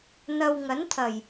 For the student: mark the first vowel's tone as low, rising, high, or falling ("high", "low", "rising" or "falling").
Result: low